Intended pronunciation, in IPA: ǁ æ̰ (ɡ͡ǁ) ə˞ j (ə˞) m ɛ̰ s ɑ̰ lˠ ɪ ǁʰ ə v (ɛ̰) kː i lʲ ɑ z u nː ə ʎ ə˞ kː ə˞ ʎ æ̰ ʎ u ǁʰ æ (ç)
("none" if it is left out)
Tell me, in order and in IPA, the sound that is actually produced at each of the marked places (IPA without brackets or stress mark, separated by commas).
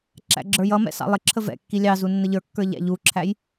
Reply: ɡ͡ǁ, ʌ, ɛ̰, j